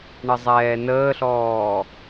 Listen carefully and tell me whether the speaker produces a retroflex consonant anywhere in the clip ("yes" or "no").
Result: yes